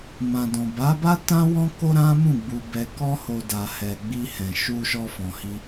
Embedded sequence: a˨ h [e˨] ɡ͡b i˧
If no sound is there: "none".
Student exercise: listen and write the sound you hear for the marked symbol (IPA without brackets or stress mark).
ɛ˨